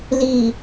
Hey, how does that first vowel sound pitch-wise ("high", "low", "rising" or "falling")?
low